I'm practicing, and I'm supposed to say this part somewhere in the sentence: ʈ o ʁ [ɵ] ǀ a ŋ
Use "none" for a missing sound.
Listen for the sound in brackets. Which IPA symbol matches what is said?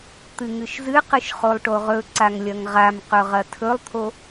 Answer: ɵ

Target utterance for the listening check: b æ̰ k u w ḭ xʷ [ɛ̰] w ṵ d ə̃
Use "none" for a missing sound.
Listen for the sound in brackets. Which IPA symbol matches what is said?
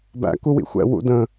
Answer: ɛ̰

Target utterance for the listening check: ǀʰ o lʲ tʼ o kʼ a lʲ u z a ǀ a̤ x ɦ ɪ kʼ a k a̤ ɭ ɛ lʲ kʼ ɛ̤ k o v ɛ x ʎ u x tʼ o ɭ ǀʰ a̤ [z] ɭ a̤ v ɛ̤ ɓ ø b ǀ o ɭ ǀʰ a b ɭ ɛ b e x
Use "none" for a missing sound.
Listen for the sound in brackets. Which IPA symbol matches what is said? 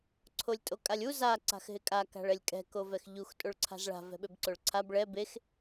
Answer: z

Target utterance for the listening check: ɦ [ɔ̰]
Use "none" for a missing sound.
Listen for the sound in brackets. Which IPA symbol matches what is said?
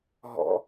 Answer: ɔ̰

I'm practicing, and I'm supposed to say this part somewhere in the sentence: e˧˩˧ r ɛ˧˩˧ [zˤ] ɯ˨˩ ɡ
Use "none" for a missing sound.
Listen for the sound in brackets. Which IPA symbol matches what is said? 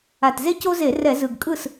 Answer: z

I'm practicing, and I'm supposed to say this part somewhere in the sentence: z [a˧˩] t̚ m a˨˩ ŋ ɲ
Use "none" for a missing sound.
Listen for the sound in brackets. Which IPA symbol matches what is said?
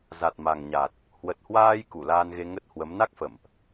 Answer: a˨˩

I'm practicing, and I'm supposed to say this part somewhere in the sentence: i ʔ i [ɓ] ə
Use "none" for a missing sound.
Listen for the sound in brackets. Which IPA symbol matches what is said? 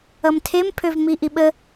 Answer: ɓ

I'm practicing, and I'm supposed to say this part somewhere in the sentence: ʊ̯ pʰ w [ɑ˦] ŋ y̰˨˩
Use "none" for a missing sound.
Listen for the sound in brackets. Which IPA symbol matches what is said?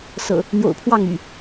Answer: ɑ˥˨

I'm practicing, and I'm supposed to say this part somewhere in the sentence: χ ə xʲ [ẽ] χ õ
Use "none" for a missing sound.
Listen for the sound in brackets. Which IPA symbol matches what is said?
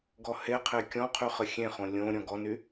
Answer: ẽ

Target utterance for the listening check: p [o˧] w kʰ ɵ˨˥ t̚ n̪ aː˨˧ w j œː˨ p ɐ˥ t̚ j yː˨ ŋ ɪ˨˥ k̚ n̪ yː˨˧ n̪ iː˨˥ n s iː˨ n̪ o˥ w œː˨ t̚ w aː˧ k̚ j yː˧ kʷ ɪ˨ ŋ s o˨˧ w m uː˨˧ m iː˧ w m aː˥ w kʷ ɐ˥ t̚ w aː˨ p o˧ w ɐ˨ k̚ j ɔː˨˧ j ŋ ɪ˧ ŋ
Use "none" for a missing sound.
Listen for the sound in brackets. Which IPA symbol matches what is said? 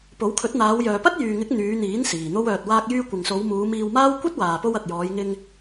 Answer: o˨˥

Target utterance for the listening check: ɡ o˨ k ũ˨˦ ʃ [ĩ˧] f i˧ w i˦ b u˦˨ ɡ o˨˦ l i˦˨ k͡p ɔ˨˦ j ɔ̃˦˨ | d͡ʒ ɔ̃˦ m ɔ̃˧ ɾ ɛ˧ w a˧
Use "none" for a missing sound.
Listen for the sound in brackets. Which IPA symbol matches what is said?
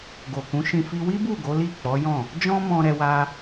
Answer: ĩ˧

